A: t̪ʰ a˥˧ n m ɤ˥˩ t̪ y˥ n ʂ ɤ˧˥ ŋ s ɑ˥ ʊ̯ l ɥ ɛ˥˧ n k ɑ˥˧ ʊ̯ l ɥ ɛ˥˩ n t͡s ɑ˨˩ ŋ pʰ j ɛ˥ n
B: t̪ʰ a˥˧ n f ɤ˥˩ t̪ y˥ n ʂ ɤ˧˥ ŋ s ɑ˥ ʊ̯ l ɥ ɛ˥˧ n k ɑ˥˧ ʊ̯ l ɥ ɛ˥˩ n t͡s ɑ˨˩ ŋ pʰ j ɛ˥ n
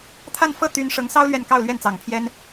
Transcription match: B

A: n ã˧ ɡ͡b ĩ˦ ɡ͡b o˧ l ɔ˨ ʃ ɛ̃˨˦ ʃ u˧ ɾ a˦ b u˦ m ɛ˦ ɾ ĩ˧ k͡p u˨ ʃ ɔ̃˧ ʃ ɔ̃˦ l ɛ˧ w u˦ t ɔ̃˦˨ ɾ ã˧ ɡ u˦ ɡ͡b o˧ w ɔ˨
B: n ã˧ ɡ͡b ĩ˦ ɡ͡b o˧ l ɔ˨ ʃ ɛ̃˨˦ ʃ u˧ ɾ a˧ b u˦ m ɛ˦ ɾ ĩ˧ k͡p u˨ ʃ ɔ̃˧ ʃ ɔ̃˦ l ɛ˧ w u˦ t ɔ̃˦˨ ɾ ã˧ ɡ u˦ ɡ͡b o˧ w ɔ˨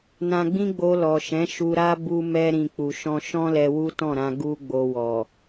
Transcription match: A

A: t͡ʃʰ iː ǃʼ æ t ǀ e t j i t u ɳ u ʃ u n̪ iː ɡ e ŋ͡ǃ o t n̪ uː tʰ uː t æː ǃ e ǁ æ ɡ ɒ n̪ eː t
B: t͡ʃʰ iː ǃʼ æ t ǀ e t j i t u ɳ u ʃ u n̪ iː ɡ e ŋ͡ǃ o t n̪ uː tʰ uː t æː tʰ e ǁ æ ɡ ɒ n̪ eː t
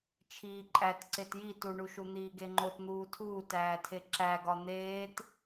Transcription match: B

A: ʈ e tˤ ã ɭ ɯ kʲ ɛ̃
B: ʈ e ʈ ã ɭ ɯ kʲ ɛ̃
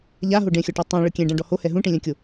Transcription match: A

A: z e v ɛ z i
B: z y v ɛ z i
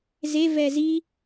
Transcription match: A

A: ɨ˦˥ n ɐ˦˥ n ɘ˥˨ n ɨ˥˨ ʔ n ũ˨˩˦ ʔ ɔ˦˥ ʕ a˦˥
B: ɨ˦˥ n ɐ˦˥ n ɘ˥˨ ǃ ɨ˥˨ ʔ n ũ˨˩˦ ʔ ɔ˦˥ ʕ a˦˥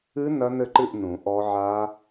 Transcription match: B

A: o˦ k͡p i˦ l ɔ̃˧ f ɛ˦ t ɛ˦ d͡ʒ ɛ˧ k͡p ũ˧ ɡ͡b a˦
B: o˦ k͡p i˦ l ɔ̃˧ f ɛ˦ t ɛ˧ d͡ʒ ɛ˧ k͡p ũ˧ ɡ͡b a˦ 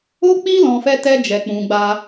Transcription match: A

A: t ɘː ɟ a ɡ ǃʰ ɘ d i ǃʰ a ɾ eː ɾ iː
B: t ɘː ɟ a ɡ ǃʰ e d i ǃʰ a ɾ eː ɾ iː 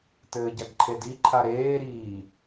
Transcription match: B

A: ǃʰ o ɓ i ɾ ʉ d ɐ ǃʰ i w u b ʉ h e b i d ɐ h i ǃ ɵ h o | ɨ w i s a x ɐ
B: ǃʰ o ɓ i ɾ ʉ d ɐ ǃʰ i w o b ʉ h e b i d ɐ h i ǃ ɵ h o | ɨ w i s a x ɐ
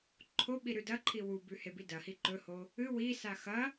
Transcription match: A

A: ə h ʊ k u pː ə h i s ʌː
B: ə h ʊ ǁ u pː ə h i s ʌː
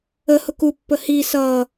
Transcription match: A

